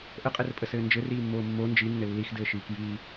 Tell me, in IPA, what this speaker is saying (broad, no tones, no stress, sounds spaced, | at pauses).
ʔ ə qʼ ɘ r pʼ ə s ɘː n d͡ʒ ɘ r iː mː oː mː o n d͡ʒ i nː ɘ lː i x d ɘː ʃ iː k j iː